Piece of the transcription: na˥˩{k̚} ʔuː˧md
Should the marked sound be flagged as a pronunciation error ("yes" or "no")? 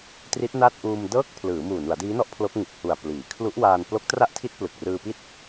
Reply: yes